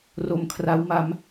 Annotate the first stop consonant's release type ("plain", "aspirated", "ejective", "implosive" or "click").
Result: aspirated